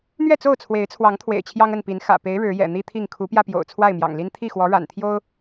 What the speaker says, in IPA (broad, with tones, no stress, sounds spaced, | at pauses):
n̪ ɥ ɛ˥˨ t͡s o˥˨ ʊ̯ t͡sʰ w e˨˦ ɪ̯ t͡sʰ w ɑ˨˦ ŋ t̪ʰ w ḛ˨˩ ɪ̯ t͡ɕʰ j ɑ˦ ŋ ə˥˨ n p i˨˦ n x ä̰˨˩ p e˨˦ ɪ̯ ɻ ɻ̩˨˦ j ɛ̰˨˩ n̪ i˦ t̪ʰ i˥˨ ŋ kʰ u˨˦ p j ä˧ p j o̰˨˩ ʊ̯ t͡sʰ w a˥˨ ɪ̯ m j ɑ̰˨˩ ŋ l i˦ n t̪ʰ i˥˨ x w ɔ˨˦ ɻ a̰˨˩ n t̪ʰ j o˦ ʊ̯